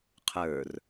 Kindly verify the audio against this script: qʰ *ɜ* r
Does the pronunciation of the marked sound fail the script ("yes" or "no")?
yes